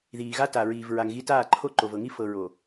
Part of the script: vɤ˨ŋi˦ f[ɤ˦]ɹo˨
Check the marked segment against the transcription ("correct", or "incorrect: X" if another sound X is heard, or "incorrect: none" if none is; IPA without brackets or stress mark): incorrect: ɤ˨